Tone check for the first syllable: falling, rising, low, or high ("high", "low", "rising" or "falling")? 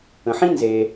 low